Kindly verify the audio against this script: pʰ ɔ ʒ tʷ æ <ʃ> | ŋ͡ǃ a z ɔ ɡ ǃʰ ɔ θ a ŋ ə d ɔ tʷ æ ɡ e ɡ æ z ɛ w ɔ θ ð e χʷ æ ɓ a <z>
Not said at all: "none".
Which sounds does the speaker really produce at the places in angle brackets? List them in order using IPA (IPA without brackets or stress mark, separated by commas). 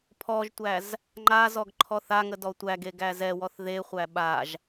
z, ʒ